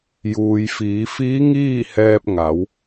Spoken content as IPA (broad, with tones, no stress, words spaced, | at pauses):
juː˩j fiː˩˧fiː˧˥ŋiː˥˨hɛː˧p̚ ŋa˩˧w